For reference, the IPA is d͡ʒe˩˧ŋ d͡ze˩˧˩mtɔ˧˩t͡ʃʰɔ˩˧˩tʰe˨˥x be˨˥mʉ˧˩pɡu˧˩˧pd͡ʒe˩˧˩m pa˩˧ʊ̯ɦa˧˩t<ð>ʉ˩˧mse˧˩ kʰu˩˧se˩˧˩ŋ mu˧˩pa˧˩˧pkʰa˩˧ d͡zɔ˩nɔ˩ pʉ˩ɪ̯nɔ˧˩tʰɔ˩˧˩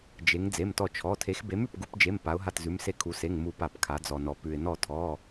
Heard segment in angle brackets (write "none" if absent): z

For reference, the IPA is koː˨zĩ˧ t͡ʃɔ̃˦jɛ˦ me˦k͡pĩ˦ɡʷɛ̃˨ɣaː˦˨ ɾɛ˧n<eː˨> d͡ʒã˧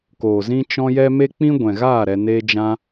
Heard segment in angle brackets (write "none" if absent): eː˦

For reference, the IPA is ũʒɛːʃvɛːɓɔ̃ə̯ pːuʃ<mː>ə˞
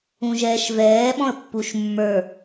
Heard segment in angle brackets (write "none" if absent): mː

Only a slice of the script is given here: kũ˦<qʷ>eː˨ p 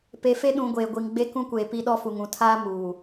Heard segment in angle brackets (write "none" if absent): kʷ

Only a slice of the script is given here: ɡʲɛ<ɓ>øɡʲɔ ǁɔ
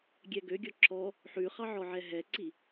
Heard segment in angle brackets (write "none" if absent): ɡ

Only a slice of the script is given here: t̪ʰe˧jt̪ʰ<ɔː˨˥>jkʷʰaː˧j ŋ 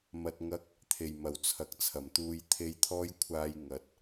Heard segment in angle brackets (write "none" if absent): ɔː˥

